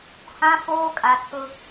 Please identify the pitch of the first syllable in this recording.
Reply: high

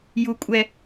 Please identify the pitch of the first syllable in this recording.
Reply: high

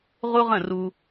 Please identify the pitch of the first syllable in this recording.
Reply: high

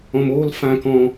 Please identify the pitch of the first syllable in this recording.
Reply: low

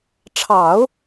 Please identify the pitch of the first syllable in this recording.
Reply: low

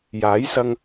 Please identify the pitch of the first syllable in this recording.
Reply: rising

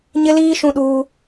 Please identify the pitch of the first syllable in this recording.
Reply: high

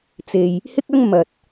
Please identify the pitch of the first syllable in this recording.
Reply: low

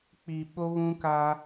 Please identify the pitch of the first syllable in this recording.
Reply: low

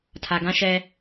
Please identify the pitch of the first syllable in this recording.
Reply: low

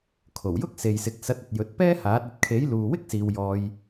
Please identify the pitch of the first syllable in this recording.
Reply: low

